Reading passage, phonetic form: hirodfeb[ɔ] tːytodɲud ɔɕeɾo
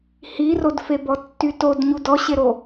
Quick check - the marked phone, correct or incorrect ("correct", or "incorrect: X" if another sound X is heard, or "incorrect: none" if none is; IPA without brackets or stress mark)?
correct